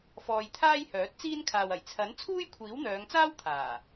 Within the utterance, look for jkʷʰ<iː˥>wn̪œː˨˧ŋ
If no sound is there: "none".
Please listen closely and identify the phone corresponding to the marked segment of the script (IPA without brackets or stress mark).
iː˨˥